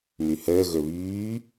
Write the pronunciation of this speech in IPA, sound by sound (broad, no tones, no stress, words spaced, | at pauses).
myhəː ɣɵβyː